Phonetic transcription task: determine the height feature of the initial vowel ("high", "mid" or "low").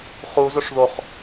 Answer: high